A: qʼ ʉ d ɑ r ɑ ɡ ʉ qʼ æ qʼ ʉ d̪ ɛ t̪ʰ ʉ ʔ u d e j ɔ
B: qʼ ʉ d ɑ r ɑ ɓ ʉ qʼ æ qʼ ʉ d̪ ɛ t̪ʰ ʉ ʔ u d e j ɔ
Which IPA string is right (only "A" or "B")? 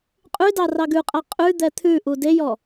A